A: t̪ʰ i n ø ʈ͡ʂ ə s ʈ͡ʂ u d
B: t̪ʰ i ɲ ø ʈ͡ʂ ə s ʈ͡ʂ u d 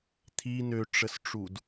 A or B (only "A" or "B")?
A